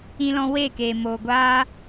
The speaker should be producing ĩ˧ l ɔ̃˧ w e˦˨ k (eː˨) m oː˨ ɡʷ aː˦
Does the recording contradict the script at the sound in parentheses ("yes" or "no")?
yes